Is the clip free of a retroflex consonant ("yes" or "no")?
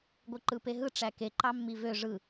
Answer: no